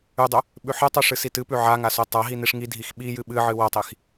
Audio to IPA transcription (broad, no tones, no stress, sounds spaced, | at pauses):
ʉ dˤ ɵ | ɓ ʉ ħ ɨ tˤ ʉ ʂ ɨ s i t ɨ p ʉ ʕ a ŋ a s o tˤ a ɦ i n i ʂ ŋ i dʱ i x ɓ i j ɨ ɓ ɨ ʕ ɨ w ɐ tˤ i x